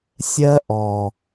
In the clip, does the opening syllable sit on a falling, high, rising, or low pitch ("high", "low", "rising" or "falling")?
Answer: high